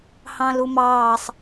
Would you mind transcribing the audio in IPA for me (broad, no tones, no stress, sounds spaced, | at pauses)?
h ɑ̃ l u m ɑː sˤ